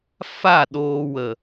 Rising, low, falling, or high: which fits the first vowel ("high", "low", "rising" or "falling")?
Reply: falling